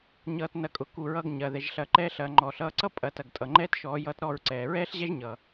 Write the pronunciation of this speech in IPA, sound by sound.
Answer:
ɲʌː˧t nɐ˧kʼʊ˨ku˨ɹʌː˧ɡ ɲɐ˨ ðɛ˨ʒɬɐ˧ǃɛː˦ɬ ɐː˨ŋ͡ǃɔː˨ɬʌː˧ ǀʌ˦pʼɐ˨ tɐ˨ɡtʼʌ˨ŋ͡ǃɛː˦t ʃɔː˨˦jʌː˦tɾɔː˦˨ɹǀɛː˨ ɹɛː˦ɬʑɛ˦ʒɲʌ˨

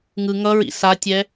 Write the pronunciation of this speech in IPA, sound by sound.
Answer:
ŋɯ ŋʌɹḭ satʲɛ

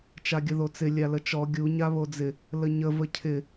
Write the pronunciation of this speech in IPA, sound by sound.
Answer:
t͡ʃaɡʲəðot͡sɪ lʲalət͡ʃɔ ɡʲu ɲaβod͡zɪ | ləɲə vəcʰɪ

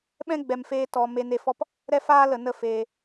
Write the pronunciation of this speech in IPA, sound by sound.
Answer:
ɓɛ̃˦ ɡ͡bɛ˧mfeː˦tɔ˧ me˧ne˦˨fɔ˦p | ɾɛ˦faː˦lə˨ nə˦feː˧

